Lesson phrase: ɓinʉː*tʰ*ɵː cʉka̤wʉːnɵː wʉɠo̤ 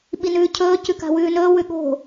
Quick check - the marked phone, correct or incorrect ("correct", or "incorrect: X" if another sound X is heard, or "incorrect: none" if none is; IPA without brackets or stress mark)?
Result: incorrect: cʰ